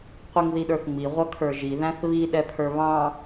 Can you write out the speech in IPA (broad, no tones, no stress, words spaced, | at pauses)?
qʷiŋðiɗə˞θŋ͡mi ʁʷʌkʰə˞ʒi ðæ̃θβi ɗɛpʰə˞βɑ̃